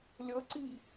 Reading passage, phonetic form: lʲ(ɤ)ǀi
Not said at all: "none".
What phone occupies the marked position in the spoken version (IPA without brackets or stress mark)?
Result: ɤ